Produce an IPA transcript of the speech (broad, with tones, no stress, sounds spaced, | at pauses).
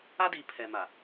a˦ d i˨ pʰ ɛ˨ m a˨